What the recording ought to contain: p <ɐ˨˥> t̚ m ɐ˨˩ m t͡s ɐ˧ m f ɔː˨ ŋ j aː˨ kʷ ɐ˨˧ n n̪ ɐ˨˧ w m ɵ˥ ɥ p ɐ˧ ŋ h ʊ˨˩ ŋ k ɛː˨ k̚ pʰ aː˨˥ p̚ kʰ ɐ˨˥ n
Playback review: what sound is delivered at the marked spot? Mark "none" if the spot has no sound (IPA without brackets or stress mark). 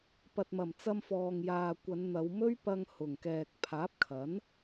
ɐ˨